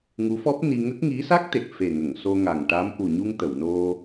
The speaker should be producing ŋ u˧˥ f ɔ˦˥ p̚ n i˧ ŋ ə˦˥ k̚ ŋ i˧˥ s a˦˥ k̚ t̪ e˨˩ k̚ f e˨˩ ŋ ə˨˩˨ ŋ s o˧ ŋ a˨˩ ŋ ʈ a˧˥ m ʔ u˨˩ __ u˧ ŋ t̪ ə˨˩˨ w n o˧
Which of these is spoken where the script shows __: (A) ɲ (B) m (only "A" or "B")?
A